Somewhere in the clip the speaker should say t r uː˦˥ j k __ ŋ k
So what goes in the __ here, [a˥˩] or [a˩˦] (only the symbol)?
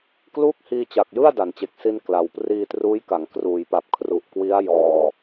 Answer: a˩˦